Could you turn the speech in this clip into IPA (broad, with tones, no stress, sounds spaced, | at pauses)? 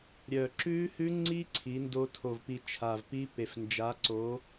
ɾʲ œ˨˩ ǁ ʉ˦˥ h ʉ˦˥ ŋ͡ǀ i˦˥ ǀʰ i˨˥ n d o˦˥ tʰ o˨˩ v p i˨˩ t͡ʃʰ a˨˩ v p i˦˥ p e˨˩ f n d͡ʒ a˨˥ ǀ o˨˥